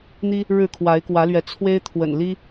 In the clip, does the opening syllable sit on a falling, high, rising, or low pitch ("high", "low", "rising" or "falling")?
high